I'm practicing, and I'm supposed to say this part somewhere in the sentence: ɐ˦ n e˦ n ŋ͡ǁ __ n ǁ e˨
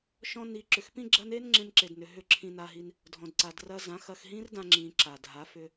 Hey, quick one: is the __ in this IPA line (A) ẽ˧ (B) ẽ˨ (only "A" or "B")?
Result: A